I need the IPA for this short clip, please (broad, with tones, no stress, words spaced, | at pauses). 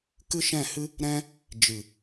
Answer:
kɨ˦ʃɛ̃˦˨hɨ˦ | ɾɛ̃˦ | d͡ʒɨ˨